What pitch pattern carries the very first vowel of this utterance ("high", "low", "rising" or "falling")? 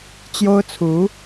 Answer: high